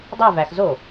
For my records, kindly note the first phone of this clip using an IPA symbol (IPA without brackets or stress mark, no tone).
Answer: dˤ